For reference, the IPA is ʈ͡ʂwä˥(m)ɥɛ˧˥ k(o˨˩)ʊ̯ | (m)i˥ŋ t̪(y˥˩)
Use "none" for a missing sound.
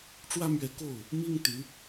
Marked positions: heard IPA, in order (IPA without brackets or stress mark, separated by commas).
m, o˥˩, m, y˧˥